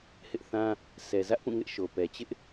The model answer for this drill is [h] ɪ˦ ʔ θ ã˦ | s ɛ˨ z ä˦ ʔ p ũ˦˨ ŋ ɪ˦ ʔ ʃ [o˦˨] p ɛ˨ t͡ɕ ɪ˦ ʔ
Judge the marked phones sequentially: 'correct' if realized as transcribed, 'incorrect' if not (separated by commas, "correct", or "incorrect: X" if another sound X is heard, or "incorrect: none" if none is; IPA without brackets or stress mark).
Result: correct, incorrect: o˨